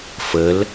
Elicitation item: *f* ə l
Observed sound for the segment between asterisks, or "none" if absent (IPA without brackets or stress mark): f